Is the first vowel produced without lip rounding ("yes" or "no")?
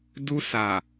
no